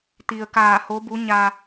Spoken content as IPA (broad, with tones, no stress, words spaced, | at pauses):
t̪i˩ə̯kaː˧˩ ho˧˥bu˧˥ ɲa˧